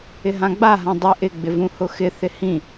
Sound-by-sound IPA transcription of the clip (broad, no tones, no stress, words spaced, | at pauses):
ɪɦãɡ͡ba ɦãdˤi ʔɪ ɡ͡bɪvũhʊxɪ θɪhĩ